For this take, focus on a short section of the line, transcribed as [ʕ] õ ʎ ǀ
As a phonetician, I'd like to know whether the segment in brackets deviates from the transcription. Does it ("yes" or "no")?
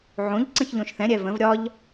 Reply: no